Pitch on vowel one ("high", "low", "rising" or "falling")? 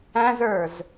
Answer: high